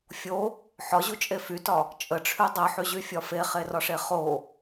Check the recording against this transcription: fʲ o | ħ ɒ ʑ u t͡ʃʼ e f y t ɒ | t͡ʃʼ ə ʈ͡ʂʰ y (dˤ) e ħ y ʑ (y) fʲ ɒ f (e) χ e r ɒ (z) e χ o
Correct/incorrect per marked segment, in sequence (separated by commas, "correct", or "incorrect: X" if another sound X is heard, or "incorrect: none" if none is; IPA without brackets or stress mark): correct, correct, correct, incorrect: ʂ